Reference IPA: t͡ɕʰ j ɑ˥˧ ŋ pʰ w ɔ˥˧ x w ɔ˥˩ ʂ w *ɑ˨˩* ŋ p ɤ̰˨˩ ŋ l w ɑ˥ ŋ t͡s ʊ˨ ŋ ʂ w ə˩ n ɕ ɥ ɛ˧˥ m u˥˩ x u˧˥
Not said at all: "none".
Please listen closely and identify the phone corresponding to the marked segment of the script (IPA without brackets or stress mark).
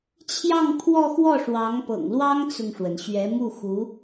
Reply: ɑ˧˥